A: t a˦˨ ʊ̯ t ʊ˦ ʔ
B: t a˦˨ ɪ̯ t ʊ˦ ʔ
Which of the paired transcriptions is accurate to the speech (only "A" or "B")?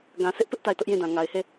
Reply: B